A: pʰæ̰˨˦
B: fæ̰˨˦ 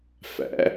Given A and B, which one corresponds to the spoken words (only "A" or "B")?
B